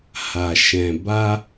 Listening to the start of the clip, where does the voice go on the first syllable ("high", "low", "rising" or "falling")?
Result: low